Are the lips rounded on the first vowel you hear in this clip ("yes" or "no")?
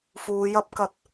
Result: yes